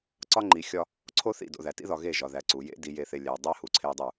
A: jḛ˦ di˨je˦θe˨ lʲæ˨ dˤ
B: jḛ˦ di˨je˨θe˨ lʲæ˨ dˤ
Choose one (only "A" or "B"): B